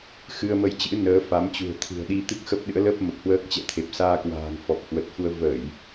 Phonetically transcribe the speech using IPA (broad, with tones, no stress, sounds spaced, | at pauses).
x ɨ˧ ə̯ m ə˧ j t͡ɕ ɨ̰˧˥ n əː˨˦ f a˨˦ m t͡ɕ ṳ˨˩ ə̯ t̪ʰ ɨ̤˨˩ ə̯ ɗ i˧ t̪ ɨ˦˥ k̚ x ə˦˥ p̚ ɗ ɨ̰˧˥ ə̯ l ə˦˥ p̚ m ə˨˩ p̚ h w əː˦˥ k̚ t͡ɕ ɛ̰˧˨ t̪ʰ e˨˩ p̚ s aː˧ k w a̤ː˨˩ ŋ f ɔ˨˩ p̚ h w ə˨˩ t̚ f u˧ ə̯ v ə˧˩˨ j